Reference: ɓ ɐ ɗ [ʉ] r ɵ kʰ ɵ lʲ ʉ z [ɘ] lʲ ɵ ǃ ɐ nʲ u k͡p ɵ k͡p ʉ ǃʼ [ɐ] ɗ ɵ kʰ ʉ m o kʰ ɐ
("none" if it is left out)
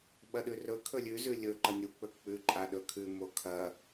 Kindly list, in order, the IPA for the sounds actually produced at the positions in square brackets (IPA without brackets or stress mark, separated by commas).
ʉ, ʉ, a